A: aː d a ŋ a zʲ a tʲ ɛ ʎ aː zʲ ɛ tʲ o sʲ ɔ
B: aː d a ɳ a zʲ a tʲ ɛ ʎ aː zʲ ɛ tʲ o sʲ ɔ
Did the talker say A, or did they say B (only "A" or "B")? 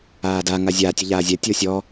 A